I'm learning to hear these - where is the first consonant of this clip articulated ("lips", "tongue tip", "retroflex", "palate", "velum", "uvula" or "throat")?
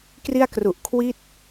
velum